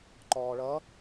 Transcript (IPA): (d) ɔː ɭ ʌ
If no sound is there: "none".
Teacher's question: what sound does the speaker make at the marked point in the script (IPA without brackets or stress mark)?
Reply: ǃ